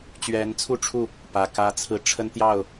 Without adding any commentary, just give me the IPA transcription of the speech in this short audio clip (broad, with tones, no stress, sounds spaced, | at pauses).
t͡ɕ ɥ ɛ˧˥ n t͡sʰ u˥˧ ʈ͡ʂʰ u˥˩ | p ä˨˩ k ä˥ t͡sʰ ɹ̩˥˩ ʈ͡ʂʰ ə˥ n t̪ j ɑ˥˩ ʊ̯